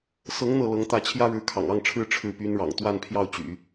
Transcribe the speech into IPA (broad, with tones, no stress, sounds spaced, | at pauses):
s ɤ˧˥ ŋ n̪ ɤ˥˩ l ɤ˧˥ ŋ t̪ ä˥˩ t͡ɕʰ j ä˥ ɻ ɻ̩˧˥ kʰ ɑ̰˨˩ ŋ ɑ˥˩ ŋ ʈ͡ʂʰ ɻ̩˥ ʈ͡ʂʰ ɻ̩˥˩ p y˥ n ɻ ɑ̰˨˩ ŋ t̪ w a˥˧ n pʰ j ɑ˥˩ ʊ̯ t͡ɕ y̰˨˩˦